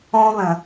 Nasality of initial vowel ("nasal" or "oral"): nasal